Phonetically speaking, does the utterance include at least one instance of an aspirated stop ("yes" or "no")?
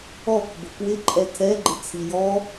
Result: yes